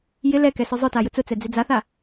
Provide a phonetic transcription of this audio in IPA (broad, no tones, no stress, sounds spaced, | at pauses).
j ɪ l ɛ k ɛ s ʊ zˤ ʊ t a j ʊ t͡s ʊ t͡s ɛ d͡z ɪ d͡z a θ a